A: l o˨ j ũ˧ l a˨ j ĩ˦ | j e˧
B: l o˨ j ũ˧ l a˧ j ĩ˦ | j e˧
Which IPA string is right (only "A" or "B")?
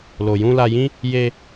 B